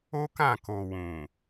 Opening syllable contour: high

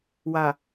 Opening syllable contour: low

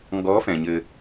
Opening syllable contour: rising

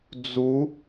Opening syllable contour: rising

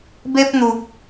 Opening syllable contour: high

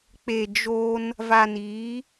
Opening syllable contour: low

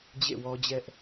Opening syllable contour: falling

